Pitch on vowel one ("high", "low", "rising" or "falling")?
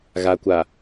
low